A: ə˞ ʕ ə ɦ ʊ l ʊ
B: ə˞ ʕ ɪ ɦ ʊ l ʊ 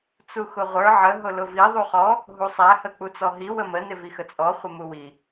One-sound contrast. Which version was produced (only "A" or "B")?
A